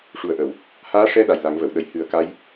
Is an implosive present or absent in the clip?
present